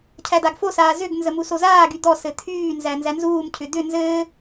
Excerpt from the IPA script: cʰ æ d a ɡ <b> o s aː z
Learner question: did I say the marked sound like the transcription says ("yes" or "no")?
no